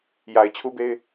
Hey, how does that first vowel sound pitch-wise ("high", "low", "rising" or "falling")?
low